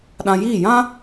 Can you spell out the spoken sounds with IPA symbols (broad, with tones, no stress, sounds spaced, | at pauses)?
ɗ ã˧ j iː˦˨ j ã˦